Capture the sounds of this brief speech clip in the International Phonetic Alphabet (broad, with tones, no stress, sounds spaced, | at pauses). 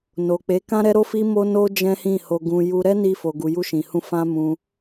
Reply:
n o˨ k͡p e˨˦ k ã˦ ɾ ɛ˦ ɾ o˦ f i˦ m o˦ n o˦ d͡ʒ ɛ̃˦ h ĩ˦˨ h o˧ ɡ ũ˧ j u˧ ɾ ɛ˦ n i˧ f o˨ ɡ u˨ j u˧ ʃ ĩ˨ h ũ˧ f ã˧ m ũ˧